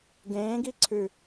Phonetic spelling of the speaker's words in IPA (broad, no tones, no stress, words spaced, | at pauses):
ɡẽːɡi ǀʰʉ